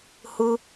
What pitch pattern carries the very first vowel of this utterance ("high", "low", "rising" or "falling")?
high